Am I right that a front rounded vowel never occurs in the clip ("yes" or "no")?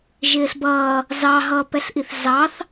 yes